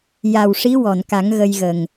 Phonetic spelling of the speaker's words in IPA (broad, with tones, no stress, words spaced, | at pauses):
ja˨˩wʂi˧˥ wɔ˨˩˨nka˨˩˦ŋ ɣə˧jɣə˨˩ŋ